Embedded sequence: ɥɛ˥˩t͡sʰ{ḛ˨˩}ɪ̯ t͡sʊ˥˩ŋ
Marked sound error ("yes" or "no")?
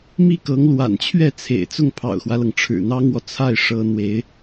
no